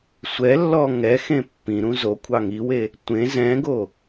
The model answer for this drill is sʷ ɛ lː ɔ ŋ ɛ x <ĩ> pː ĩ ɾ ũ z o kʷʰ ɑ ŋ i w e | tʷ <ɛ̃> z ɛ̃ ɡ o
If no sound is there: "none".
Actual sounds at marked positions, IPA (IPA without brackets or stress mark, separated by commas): ẽ, ẽ